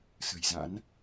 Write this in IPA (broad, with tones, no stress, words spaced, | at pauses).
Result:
sə̤˨˩jza̰˧˥n